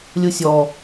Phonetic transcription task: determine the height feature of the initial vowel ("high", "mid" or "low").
high